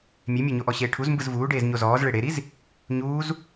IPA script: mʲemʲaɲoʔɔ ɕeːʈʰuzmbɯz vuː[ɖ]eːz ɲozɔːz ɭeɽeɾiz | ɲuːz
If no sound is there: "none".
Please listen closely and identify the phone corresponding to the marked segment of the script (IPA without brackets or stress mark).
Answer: ɖ